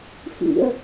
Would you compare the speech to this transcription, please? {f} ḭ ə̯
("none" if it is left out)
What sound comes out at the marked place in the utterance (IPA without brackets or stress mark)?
f